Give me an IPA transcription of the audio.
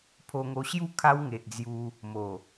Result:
pʰ o˧ ŋ o˧ ɕ j u˦ kʰ a˦ w ŋ e˨ ʔ d͡z j u˧ | m o˨˩

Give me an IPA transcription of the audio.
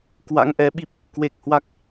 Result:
k w a̰˧˥ ŋ ʔ ɛ˨˦ ɓ i˦˥ p̚ | k w e˨˩ k̚ h w a˦˥ k̚

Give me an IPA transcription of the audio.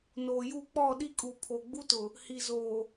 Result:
n oː˨ j u˦˨ k͡p ɔ˦˨ ɗ i˦ kʼ u˨ pʰ o˨ ɡ͡b u˦ t ʊ˨ | h i˨ z oː˨

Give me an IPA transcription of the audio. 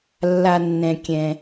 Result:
lː a˩ nː ɛ̃˩ kʲ ɛ̃˩

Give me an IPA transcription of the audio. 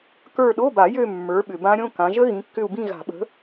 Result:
k ə˞˦˨ ɗ o˧˥˧ b a˨˩˦ j ø˦˨ mː ə˞˨˦ ɓ ʏ˨ b ã˦˥ ɾʲ õ˧˥˧ k ã˨˦ ʒ ə˦˥ ɣ ĩ˨˦ kː ʏ˦˨ u̯ b ĩ˦˨ ɣ a̤˨˩˦ ɓ ə̤˨˦

